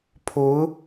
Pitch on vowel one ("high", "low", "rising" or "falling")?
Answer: rising